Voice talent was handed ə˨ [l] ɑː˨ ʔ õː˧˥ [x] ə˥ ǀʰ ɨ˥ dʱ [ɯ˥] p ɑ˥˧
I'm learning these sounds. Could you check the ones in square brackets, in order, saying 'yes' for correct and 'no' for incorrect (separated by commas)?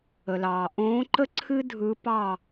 yes, no, no